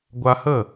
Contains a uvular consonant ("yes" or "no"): no